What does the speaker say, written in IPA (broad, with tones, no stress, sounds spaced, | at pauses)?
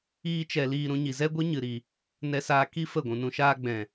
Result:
iː˦ t͡ʃ ɛ˧ l iː˧ ɾ ũ˧ ɲ i˨ z ɛ˦ ɡʷ ɨ˦ ɲ ɨ˨ ɾ i˨ | n ɛ˧ s aː˧ k i˦ f ə˦˨ ɡʷ ũ˨ n ũ˧ ʃ aː˦ ɡ͡b ɛ̃˨